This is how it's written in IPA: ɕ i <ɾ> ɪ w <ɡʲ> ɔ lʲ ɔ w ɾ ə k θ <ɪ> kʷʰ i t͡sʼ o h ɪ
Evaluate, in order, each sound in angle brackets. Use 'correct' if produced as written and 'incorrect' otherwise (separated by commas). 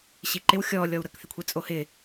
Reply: incorrect, incorrect, correct